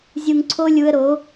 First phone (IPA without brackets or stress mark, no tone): zʲ